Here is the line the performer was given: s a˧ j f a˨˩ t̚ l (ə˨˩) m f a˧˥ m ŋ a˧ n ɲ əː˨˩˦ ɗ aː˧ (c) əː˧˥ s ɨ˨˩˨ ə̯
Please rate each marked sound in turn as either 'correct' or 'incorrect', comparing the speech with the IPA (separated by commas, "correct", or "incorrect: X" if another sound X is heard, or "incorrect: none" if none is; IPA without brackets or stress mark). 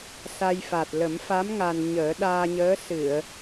incorrect: ə˨˩˦, incorrect: ɲ